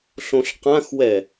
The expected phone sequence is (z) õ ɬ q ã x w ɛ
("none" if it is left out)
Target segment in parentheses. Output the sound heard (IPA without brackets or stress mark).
ɬ